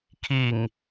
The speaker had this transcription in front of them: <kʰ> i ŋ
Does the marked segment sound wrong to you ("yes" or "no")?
no